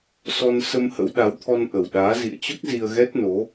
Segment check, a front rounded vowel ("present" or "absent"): absent